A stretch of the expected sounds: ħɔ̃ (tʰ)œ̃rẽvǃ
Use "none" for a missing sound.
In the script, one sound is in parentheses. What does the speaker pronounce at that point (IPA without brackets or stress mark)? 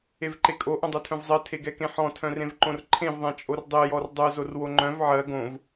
tʰ